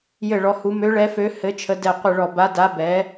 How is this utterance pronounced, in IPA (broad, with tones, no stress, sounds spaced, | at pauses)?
j ɘ˧˩ ɭ ɔ˨˦ h u˨˦ m ø˨˦ ɭ ɛ˨˦ f ø˨˦ h ɘ˨˦ t͡ʃʰ ə˨˦ d ɛ˧˩ qʷ ɘ˧˩ ɭ ɔ˧˩ b a˨˦ d a˨˦ b ɛ˨˦